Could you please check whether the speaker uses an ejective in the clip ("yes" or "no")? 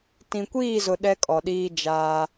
yes